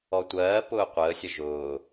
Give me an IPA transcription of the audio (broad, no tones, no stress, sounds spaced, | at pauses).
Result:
ɔ tʷ ɜː p ʊː qʷ əː sʲ ə ʒ ʊː